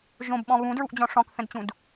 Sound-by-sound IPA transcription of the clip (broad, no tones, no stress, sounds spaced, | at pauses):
ʒ õ b ɓ ɔ̃ β ũ d ɹ u ʔ d͡ʑ ɔ̃ ʂ ɔ̃ k θ ə̃ d t͡ɕ ũ d